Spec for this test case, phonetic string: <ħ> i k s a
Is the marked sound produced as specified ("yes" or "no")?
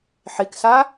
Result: yes